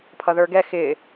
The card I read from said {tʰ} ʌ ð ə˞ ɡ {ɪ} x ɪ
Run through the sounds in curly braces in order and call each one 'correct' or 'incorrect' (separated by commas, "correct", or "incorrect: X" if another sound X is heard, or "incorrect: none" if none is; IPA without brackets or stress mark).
incorrect: pʰ, incorrect: ɛ